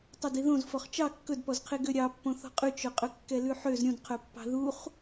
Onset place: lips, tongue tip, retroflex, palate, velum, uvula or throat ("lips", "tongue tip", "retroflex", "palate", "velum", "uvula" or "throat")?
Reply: tongue tip